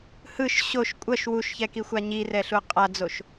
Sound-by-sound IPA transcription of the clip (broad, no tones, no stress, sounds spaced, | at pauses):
h ɯ ʃ ɕ o ʃ kʷʼ ʌ ʃ w u ʃ ç ɛ k i xʷ a ɲ i r ɛ ɬ u qʼ a d͡z o ʃ